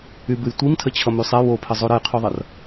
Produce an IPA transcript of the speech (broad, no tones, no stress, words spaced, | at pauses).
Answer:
ybɨj tʷimtʰət͡ɕʰʌ mysˤɛ wopʰə zˤoɾəjqʰuðˤʌr